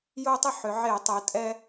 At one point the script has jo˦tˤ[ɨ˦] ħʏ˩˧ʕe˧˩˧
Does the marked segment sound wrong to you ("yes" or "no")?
yes